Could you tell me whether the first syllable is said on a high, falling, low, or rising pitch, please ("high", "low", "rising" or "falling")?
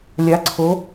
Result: rising